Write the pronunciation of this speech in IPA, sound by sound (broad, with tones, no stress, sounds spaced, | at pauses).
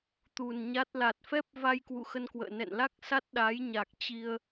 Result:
t̪ u˨˩ n ɲ a˦˥ t̚ l a˨˩ t̚ f ɛ˦˥ p̚ v a˧ j k w ṵ˧˨ x ə˧ n k w ə̰ː˧˨ n ɛ̰˧˨ n l a˦˥ k̚ s a˦˥ t̚ ɗ a˨˦ j ɲ a˨˩ k̚ t͡ɕ i˧ ə̯